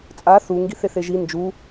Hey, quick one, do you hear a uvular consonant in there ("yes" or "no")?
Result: no